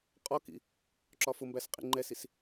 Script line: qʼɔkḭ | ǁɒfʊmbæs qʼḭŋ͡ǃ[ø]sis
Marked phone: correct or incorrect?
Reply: incorrect